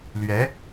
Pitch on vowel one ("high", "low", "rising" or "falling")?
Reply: rising